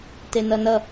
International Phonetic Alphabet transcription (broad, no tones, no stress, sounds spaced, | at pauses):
t e n ʌ n ʌ